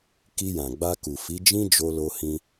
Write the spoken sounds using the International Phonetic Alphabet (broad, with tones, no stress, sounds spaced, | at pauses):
k i˧ j ã˨ ɡ͡b a˧ k u˨ f i˨˦ d͡ʒ ĩ˦ d͡ʒ o˧ l o˧ h ĩ˧